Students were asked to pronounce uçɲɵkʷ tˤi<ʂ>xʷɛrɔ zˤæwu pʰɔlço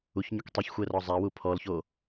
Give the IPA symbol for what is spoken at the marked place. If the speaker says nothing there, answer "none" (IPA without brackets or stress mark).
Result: ç